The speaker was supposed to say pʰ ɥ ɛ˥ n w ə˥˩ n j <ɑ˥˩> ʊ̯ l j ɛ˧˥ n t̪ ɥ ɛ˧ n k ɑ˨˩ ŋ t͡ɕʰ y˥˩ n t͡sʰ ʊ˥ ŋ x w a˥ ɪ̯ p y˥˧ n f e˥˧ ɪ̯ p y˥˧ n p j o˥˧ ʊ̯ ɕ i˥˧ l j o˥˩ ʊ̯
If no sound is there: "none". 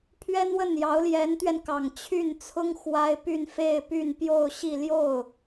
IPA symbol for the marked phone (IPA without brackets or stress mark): ɑ˧˥